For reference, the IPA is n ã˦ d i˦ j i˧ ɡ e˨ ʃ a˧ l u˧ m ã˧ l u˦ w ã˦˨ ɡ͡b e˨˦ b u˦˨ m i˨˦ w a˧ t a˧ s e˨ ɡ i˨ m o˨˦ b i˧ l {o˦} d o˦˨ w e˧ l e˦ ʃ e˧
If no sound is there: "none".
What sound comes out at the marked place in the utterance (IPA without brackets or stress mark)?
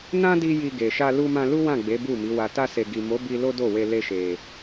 o˦